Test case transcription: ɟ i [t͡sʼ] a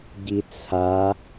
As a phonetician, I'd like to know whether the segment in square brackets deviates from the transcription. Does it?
yes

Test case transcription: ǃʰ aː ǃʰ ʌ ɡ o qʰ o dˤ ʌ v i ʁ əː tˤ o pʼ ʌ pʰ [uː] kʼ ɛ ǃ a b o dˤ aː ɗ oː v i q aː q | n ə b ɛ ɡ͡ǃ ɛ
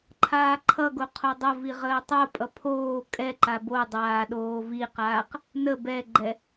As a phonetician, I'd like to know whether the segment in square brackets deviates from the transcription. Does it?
yes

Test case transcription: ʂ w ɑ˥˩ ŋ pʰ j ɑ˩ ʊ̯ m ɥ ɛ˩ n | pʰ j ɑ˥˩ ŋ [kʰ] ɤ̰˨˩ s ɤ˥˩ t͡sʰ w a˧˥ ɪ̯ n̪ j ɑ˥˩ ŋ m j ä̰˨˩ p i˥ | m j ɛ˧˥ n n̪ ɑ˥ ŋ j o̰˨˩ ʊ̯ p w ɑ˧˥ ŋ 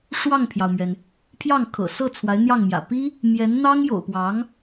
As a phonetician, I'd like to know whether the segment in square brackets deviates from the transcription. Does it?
no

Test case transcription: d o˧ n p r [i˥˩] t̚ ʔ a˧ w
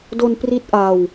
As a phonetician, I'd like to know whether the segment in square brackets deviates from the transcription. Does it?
yes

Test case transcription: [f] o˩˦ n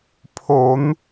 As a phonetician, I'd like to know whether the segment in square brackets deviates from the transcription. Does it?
yes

